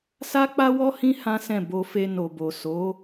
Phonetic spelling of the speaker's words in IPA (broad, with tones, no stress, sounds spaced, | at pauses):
s a˦ k͡p a˦ w ɔ˦ h ĩ˦ h ã˦ s ɛ̃˦˨ b o˧ f e˧ n o˨ b o˨ s o˨˦